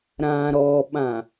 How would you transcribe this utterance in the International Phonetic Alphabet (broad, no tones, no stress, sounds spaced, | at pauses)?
ɾ ã ɾ ɔ ɓ ã